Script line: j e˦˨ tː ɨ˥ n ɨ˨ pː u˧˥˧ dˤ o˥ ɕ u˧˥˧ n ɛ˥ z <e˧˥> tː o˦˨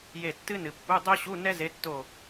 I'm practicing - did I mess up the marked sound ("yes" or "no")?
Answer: no